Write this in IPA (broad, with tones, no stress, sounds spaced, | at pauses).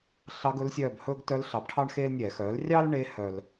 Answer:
ɬ ɑ˧˥ ɡ ɵ˧˥ l sʲ œː˦˨ b h ɵː˥ ɡ t œ˧˥ l ɬ ɑ˩˥ b ʈʰ ɑ˥ ɳ x eː˥ l nʲ ɛ˧˩˧ x œː˩˥ l rʲ ɑ˥ l ɳ e˧˥ h œ˥ l